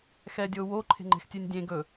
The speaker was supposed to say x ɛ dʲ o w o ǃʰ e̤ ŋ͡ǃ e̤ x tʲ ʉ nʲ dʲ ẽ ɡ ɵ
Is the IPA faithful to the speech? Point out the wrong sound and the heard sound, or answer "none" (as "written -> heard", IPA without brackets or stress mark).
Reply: none